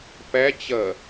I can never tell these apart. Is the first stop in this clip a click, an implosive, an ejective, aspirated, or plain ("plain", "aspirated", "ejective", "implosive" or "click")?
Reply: plain